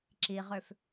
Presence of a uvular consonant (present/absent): present